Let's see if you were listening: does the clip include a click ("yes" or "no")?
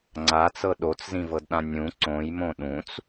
yes